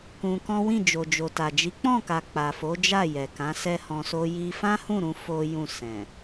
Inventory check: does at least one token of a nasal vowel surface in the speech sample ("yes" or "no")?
yes